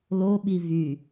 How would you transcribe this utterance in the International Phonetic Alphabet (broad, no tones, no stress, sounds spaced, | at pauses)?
l o ɓ i v y